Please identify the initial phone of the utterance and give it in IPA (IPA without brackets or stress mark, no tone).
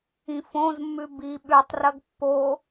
ĩ